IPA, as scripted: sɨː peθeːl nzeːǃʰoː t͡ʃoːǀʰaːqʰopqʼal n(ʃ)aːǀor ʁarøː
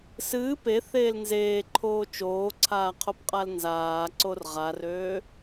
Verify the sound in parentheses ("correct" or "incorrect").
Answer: incorrect